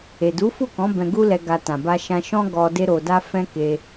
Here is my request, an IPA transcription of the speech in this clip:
e˨du˨˦fu˦˨kɔ̃˨˦ bɛ̃˧ɡu˦lɛ˧ ɡa˧ tã˨ba˧ʃã˧ ʃɔ̃˦ɡɔ˧ de˦ɾo˧da˦ fɛ̃˦ ke˧

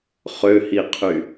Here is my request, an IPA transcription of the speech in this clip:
χøhiqʰy

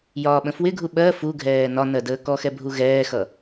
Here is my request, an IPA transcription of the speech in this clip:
jɒːɓə̃fwɪɡʱu ɓɜ fuɡʱɛː nɒnɜ dəːkɔxɛ bʱuɣɛːxʌ

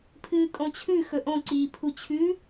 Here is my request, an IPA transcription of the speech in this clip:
pʰɨːkʼõt͡ɕʰʉ xɵʔõ ǀiːpʰut͡ɕʰʉ

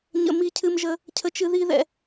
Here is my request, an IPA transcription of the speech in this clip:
ɲə̰˧ mi˧cʰɨ˧mʒə˧ | cʰə˧t͡ʃɨ˧ ði˥ðɛ̰˧

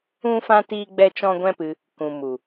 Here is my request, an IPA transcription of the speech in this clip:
ũ˦fã˦ tiː˦ɡ͡bɛ˦t͡ʃɔ̃˦ ɡʷɛ̃˦pɨ˧ | kũ˨mu˨

